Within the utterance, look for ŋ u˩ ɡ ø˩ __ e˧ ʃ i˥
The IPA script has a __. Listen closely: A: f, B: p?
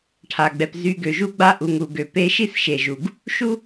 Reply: B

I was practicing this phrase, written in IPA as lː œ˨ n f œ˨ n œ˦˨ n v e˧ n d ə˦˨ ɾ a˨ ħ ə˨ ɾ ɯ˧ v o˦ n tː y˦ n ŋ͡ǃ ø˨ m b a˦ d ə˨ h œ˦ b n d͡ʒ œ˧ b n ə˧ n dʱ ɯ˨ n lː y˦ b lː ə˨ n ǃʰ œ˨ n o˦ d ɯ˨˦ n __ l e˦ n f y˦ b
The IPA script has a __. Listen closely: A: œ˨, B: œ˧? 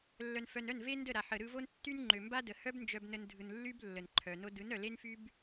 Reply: A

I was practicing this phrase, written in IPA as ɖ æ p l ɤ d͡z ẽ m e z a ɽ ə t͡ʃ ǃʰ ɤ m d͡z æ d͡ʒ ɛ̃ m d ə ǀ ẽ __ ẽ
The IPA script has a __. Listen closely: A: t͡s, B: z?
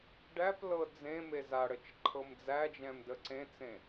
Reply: A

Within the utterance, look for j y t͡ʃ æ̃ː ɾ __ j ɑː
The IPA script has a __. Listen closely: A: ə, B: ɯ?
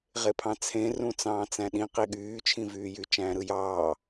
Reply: B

